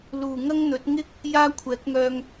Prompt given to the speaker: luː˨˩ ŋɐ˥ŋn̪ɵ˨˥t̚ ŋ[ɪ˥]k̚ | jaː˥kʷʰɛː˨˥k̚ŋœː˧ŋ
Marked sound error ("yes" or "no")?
no